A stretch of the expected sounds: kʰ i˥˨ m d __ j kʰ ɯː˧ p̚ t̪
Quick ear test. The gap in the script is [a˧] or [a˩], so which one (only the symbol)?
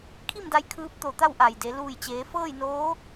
a˧